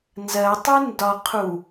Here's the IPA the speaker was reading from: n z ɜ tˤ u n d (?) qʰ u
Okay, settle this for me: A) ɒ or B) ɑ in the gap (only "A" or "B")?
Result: A